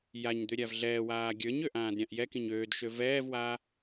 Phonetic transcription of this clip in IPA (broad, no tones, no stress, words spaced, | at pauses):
jaɲd̪øɾʲav ɮɛːwaː ɡʲə˞ɲøʔãːdɾʲãʔ jɛkĩɲ øːdʃø vɛːvwaː